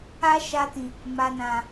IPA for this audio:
a˦ ʃ a˧ t ĩ˨ | m a˨ n ã˨

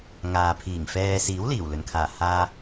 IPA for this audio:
ŋ aː˨ pʰ iː˨˩ ŋ f ɛː˧ s iː˨˥ w l iː˨˩ w l ɵ˨˩ n kʰ aː˨˩ h aː˧

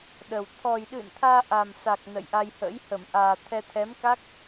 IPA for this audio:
ɗ ə˨˩ w t̪ʰ ɔ˨˩ j ɗ ɨ̰˧˨ n t̪ʰ aː˧ ʔ a˨˩ m s a˨˩ k̚ n ə̰˧˨ j ʔ a˧ j h ə̰ː˧˥ j h ə˧˩ m ʔ aː˨˩ t̪ʰ ɛ˧ t̪ʰ ɛ˨˦ m k a˦˥ k̚

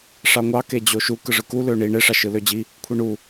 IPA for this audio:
ʂ ɑ ŋʷ ɑ k e d͡ʑ o ʃ u k ɯ ʐ ɯ k u l ø ɳ i ɳ e ʂ ɑ ʃ ɯ l ø d͡ʑ i | kʷʰ i ɳ u

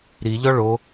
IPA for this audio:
ɾ i ʎ ɔ ɭ o

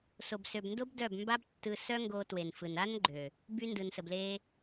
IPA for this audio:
s o˨ b s ø˨ b n d o˦ b d œ˦˨ b m b a˦ b tː ɯ˧ s œ˦ ŋ ɡ o˧ t w e˨ n f ɯ˨ n a˦ n ɡ͡ǃ ø˨ | b y˧ n d ɯ˨ n s ə˨ b l e˧

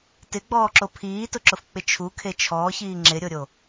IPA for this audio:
t ɪ ɡ͡b ɔː ǁ o pʰ iː t ʊ ǁ ʊ f k͡p ɪ t͡ʃʰ u kʰ e t͡ʃʰ ɔː ç iː ŋ͡ǁ ɪ ɾʲ o ɾʲ o

